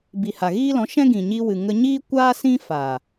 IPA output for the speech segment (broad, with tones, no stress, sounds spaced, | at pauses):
b i˨ h a˨ ɣ iː˦ l ɔ̃˨˦ ʃ ɛ̃˦ ɡ ĩ˨ ɲ i˧ w ɨ˨ ŋ ə˧ ɲ iː˦ kʷ aː˦ s ĩ˦ f a˨